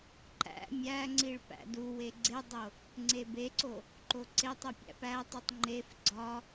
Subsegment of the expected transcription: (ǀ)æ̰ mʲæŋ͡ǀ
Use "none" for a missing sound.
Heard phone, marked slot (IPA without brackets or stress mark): ǃ